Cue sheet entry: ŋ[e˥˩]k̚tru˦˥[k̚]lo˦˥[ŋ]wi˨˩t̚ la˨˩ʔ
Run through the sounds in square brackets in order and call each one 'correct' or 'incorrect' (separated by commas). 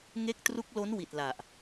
incorrect, correct, incorrect